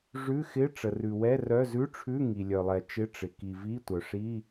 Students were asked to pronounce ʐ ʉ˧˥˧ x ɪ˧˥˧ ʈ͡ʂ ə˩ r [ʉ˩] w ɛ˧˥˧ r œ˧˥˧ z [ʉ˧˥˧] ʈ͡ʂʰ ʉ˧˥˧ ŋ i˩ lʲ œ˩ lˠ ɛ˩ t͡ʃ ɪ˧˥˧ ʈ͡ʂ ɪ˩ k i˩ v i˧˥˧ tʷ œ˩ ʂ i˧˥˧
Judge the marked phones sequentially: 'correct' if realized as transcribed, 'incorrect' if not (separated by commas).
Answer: correct, correct